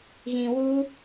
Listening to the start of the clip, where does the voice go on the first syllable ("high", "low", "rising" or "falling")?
low